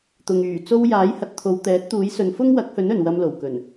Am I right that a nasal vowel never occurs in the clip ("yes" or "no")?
yes